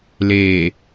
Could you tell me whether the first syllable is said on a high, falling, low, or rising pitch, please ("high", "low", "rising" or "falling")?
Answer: low